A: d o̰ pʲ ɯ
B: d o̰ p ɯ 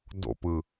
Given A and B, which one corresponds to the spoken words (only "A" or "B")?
B